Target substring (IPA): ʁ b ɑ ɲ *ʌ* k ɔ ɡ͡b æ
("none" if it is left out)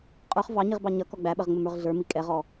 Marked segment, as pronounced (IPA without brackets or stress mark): ʌ